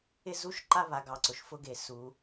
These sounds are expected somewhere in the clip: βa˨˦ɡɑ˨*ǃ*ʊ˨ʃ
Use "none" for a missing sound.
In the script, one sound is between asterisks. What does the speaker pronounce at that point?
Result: ǀ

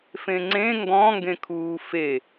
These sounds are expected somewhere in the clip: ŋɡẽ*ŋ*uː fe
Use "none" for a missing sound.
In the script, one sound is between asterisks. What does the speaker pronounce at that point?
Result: kʰ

